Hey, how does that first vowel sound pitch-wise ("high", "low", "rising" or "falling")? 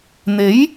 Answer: rising